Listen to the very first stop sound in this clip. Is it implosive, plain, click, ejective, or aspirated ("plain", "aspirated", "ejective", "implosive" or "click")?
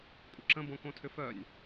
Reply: ejective